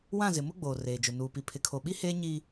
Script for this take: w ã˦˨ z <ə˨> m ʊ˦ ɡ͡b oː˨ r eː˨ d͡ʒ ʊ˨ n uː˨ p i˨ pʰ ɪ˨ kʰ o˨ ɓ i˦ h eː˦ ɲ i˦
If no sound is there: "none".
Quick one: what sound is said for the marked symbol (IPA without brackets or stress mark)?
ɪ˨